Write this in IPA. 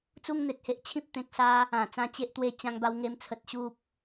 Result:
t͡s u˦ ŋ n̪ e˨ t̚ h e˦ ʔ t͡ɕʰ ĩ˦ p̚ t̪ ẽ˨ k̚ s a˧ | ã˨˩ t͡s ã˧ t͡ɕ e˨ ʔ t̪ w e˨˩ t͡ɕ ã˧ ŋ b a˧ w ŋ e˧ m t͡sʰ ə˨ t̚ ɕ u˨ p̚

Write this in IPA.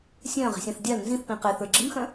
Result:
sʲ œ̃ː ʁ i̤ sʲ ã θ dʲ a l n z ĩ θ p ĩ q ɪː θ ə˞ ɡ͡ǁ ɪ m x œ̃

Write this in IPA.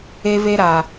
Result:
e˦ v e˦ ɾ a˨

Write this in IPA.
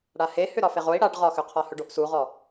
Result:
ɽ a h e h ʏ ɾ ɒ f e ʁ o i̯ ɽ a ɖ ʁ ɒ x ʏ qʰ ɒ h ɵ ɖ o ʔ s u ʁ ɔ

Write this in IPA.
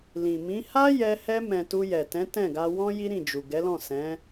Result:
l ĩ˨ m ĩ˨˦ h a˦ j ɛ˧ h ɛ˧ m ɛ̃˨ t u˧ j ɛ˨ t ɛ̃˨˦ t ɛ̃˦˨ ɡ a˧ w ɔ̃˦ j i˦ ɾ ĩ˦˨ d͡ʒ u˨ ɡ ɛ˨˦ l ɔ̃˦˨ s ɛ̃˨˦

